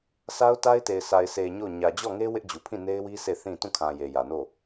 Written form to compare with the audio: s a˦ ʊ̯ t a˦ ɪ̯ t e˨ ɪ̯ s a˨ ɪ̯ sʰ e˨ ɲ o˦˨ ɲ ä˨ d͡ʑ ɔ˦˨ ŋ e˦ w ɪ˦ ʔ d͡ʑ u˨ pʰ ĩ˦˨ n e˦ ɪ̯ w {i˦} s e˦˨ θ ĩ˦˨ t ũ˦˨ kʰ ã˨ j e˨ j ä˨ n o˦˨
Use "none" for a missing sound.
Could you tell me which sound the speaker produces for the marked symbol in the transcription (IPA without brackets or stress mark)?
i˦